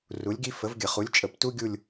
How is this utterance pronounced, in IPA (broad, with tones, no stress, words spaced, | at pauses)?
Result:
ru˨˥lʲɡi˥ fə˨˥vɡʲə˧˩˧χu˨˥lʲ t͡ʃʼə˧˩˧ptu˥ɡʲu˦˨lʲ